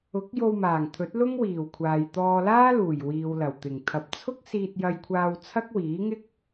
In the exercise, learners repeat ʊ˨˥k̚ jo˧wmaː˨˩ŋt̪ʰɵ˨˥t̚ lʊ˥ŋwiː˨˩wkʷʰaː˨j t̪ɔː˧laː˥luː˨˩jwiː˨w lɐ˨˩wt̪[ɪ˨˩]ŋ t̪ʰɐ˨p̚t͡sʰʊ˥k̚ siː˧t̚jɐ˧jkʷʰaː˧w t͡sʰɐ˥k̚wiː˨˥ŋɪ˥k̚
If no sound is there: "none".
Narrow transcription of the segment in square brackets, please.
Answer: ɪ˨˩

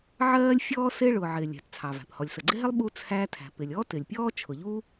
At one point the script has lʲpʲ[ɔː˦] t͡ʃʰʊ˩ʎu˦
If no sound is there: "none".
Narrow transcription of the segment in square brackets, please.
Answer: ɔː˦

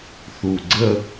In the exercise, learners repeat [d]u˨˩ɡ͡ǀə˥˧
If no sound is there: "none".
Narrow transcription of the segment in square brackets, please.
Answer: θ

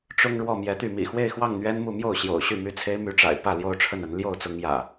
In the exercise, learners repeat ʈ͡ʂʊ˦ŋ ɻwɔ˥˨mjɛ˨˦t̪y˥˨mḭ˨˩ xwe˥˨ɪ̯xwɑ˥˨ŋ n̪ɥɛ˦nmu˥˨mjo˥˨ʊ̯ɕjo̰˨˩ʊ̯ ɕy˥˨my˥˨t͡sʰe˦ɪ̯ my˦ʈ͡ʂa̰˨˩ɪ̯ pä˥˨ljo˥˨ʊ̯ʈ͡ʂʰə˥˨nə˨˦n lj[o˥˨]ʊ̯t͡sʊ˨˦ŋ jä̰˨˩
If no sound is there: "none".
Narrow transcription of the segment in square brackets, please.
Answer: o˥˨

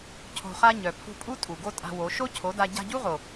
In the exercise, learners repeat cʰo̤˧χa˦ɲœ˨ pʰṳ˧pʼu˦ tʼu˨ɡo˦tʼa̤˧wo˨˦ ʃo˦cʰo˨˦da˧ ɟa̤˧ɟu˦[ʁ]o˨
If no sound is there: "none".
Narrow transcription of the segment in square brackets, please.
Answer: ʁ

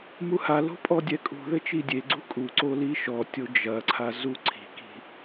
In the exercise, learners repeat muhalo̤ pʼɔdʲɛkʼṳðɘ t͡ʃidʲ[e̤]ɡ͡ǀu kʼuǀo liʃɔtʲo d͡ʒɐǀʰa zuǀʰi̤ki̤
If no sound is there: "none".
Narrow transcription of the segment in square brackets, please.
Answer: e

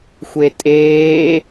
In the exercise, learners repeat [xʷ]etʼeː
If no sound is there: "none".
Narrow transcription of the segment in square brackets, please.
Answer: xʷ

